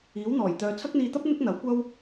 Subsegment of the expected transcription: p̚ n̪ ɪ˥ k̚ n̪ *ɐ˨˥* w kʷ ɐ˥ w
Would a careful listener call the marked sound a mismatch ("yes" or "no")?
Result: no